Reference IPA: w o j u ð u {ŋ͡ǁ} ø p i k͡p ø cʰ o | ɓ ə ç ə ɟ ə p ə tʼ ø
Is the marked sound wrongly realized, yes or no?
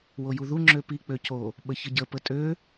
no